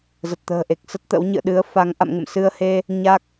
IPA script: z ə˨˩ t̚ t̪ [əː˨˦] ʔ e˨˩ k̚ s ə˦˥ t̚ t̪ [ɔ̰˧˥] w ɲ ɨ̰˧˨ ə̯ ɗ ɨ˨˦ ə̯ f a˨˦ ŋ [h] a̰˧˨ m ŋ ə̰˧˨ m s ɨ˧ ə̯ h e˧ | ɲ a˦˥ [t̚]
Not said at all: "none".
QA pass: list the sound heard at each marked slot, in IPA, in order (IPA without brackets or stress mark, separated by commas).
ə̤ː˨˩, ə̰˧˥, ʔ, k̚